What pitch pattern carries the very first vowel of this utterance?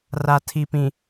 low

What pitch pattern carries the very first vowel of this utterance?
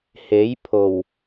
rising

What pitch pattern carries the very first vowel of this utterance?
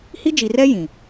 high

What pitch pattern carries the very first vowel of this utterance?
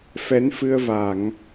rising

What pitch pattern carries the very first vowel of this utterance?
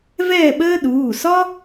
falling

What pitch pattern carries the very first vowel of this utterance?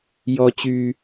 high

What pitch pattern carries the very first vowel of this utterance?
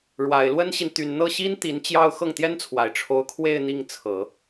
low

